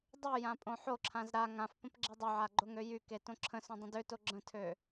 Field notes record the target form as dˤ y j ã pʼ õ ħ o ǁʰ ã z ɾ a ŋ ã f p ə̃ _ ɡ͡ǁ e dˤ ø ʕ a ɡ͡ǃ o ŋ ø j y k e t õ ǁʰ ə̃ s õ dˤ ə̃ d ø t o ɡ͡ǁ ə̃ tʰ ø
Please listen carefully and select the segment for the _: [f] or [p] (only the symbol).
p